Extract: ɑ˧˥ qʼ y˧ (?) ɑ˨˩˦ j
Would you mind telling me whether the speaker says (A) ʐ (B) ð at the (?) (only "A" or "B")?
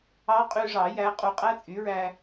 A